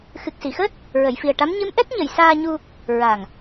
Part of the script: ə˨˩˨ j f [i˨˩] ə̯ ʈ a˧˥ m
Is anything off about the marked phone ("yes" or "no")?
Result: no